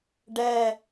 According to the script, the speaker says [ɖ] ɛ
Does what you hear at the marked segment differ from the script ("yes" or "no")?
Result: no